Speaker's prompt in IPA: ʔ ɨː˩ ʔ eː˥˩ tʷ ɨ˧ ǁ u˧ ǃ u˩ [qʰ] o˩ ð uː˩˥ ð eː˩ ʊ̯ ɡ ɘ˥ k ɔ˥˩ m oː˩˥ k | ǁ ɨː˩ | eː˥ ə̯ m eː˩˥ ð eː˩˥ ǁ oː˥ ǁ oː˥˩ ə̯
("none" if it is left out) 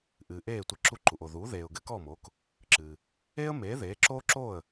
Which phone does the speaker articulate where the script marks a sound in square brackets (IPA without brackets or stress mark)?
ʔ